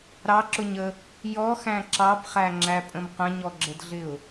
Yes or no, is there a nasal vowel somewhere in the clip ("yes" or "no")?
yes